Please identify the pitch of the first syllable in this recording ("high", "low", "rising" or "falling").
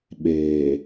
low